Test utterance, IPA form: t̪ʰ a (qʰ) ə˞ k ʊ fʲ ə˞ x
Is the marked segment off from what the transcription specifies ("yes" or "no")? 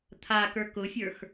yes